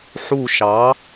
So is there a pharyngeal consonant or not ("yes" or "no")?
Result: yes